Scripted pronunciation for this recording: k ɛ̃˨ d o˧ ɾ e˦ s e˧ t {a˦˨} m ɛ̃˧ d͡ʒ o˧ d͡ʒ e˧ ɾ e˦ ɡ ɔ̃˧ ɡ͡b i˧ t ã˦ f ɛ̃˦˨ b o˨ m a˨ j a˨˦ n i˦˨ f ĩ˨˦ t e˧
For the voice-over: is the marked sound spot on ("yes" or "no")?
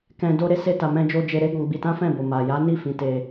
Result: no